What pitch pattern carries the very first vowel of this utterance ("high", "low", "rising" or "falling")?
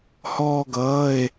high